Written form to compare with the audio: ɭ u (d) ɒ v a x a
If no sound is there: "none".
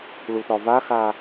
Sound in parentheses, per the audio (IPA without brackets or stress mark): t